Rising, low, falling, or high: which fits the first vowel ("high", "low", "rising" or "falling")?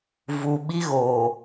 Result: low